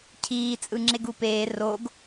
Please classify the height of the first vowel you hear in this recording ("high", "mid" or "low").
high